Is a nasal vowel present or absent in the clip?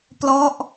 absent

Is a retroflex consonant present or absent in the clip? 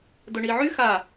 present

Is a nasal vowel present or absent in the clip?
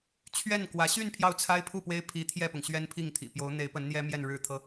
absent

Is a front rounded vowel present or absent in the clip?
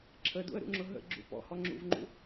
absent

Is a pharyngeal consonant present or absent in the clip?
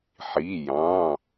present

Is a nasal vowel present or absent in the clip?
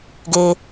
absent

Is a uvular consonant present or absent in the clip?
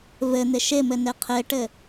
present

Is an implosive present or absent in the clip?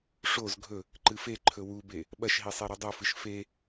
present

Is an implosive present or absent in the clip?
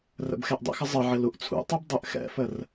absent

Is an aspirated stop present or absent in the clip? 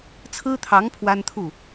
present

